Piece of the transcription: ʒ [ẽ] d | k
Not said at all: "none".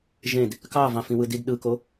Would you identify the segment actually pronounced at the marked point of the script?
ẽ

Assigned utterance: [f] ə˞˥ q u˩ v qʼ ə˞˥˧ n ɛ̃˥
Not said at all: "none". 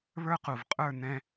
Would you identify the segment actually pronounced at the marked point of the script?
β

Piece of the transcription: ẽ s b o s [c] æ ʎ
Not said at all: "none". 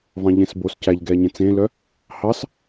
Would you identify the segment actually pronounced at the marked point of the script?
c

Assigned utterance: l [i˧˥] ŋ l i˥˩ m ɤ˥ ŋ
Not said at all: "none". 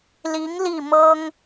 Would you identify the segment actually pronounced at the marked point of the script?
i˧˥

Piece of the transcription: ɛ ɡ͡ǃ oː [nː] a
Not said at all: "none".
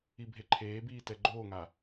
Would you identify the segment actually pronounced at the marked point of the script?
ŋ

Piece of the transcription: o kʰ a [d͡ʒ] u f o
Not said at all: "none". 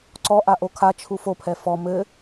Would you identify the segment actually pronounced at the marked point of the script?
t͡ʃʰ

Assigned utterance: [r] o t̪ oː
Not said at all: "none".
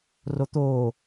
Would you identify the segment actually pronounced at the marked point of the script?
r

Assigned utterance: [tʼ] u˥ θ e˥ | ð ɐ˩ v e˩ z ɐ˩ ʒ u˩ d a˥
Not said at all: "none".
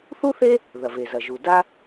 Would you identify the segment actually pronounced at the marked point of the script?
θ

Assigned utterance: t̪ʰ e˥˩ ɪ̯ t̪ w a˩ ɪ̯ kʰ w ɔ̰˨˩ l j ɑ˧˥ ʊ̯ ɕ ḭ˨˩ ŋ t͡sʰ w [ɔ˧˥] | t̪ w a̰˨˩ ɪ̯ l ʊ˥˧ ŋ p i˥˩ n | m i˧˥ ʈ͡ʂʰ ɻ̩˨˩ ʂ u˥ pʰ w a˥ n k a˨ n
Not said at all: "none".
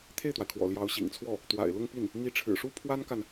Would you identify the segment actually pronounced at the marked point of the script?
ɔ˥˩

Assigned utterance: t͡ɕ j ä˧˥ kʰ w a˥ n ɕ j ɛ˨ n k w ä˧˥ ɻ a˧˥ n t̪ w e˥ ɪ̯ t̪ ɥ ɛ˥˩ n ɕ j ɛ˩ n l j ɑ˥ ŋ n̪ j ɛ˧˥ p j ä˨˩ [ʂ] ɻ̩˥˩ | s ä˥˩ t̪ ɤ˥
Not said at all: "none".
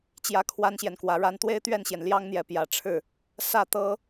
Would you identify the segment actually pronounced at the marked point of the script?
ʈ͡ʂʰ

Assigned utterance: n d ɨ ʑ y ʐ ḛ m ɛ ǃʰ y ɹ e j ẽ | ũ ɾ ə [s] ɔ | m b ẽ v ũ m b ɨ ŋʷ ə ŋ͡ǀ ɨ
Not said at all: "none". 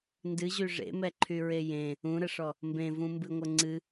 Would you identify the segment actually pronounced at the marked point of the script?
ʂ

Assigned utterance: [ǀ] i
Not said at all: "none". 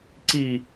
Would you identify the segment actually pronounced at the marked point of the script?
ǀ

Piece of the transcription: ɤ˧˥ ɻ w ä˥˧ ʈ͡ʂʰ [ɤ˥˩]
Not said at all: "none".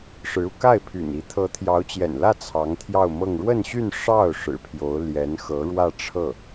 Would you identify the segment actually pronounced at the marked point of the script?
ɤ˥˩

